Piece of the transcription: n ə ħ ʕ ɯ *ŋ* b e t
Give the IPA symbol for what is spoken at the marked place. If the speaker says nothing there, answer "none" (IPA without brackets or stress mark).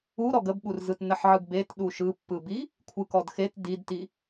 ɡ